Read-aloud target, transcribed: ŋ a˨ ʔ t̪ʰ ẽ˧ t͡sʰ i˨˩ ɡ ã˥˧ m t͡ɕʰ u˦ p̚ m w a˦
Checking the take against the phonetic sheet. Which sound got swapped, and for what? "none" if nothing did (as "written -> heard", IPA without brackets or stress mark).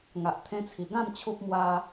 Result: none